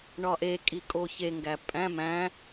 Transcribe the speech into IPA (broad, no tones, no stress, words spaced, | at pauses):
ɳɒʔekʼi kʼoçeŋɡæ pʼæ̃ mæ̃